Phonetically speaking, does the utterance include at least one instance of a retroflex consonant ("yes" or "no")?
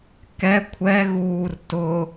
no